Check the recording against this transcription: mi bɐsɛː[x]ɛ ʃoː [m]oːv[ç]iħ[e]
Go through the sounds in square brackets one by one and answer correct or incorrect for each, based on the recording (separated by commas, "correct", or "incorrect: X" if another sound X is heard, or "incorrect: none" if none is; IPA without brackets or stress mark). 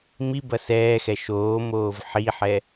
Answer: correct, correct, incorrect: ħ, incorrect: ɛ